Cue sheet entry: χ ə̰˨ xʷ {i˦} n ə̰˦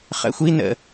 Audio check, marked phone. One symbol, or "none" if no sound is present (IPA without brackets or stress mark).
i˦